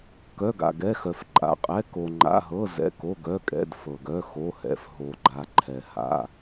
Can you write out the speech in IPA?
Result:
kœ˩˧˩ɡa̰˩ɡɛ˩˧˩xœ˩f ǃʼa̰˩qʼɛ˩˧˩ ko˩ŋ͡ǃa̰˩˧˩ɦɤ˩˧˩ zɛ̰˩˧˩ko˩˧˩ɡœ˩˧˩kʼɛ̰˩˧˩d fɤ˩ɡœ˩˧˩ xo˩˧˩hɛ̰˩f ɦo˩ɡ͡ǃa˩ ǃʰɛ˩ha̰˩˧˩

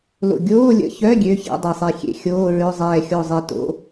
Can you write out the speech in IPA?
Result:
lo̰˧˩ ɡʲoː˧˥˧lʲə̰˧˥˧çœ˧˥˧ ɡʲø˧˥˧çɛ̰˧˥˧ dˤe˧˩sˤɛ˧˩ xʲḛ˧˩ xʲoː˧˥˧ɹø˧˥˧ zˤɛː˧˩xʲo˧˩zˤe˧˩to̰˧˥˧

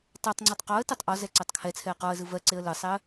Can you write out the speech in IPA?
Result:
tˤɜtˤŋ͡ǀetˤ qɔə̯tɜtˤ ʔɔzɛ ǀɜtˤkʰɛt͡sʰɛə̯ qɔə̯zɯ vɜǀeə̯ lɯsˤɛə̯

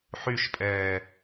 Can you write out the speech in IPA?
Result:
ħyʃpʼɛː

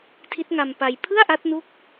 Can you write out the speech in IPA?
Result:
tʰi˦˥t̚ŋa˧mpa˧j pʰɯ˥˩a̯ʔa˦˥t̚nu˦˥k̚

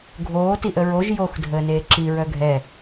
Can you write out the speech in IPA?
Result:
ɡʱoː tiʔəɹoʒ jox dʱəːneːǁi ɹœɡʱɛ

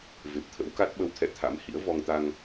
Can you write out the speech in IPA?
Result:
ve˨˩p̚t̪ʰə̰˧˥wka˦˥t̚ ɓə˨˦wt̪ʰɛ̰˧˨ t̪ʰa̰˧˥m hḭ˧˥ə̯vɔ˧ŋt̪a˧ŋ

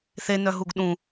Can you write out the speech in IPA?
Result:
θenœɦuɡ ɗũ

